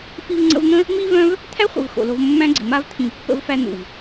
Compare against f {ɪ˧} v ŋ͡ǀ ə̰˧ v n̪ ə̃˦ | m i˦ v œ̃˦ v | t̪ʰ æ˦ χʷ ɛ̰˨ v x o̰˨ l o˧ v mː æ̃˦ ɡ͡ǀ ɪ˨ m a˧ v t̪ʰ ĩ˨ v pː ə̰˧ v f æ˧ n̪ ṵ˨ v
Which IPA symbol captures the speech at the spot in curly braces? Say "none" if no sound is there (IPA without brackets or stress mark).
i˧